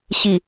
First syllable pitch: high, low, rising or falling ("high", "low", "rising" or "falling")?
low